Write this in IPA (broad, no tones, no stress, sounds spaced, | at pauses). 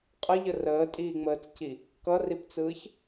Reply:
qʼ ə ʎ ə r əː tʼ iː ŋ͡m əː t͡s c i | k ʌ r i p t͡s ɯː ç